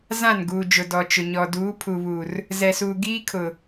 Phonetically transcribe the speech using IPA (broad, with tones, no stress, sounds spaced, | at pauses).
z ã˦˨ n ɡ uː˨ d͡ʒ ʊ˨ d ɔ˨ t͡ʃ ʊ˨ ɲ ɔ˨ d uː˨˦ pʰ u˨ β uː˨ r | z ɛ˨ s uː˨ ɡ iː˦ kʰ ʊ˨